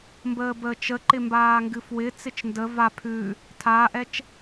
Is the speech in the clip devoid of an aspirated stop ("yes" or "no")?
no